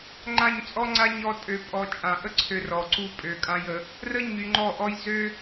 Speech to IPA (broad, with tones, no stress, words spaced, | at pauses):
ŋ͡ǃã˦˨ɲt͡sʼɔ˦ŋ͡ǀa˦ ɲɔ˧ tʼø˨pʼɔ˨ t͡ʃʼã˨ʔə˦ǀʰø˧ rɔ˨ǀu˧ pʼø˨kʼã˧jə˨˦ | rə˦ ɲy˧ŋ͡ǃɔ˦˨ʔɔ˦j zø˦